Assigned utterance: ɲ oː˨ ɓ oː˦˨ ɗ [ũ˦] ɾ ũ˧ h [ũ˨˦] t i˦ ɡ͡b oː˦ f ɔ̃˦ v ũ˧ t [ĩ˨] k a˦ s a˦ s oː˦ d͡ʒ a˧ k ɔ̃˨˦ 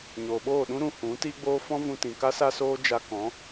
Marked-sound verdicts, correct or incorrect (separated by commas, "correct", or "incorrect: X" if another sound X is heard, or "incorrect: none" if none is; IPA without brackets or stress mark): correct, correct, correct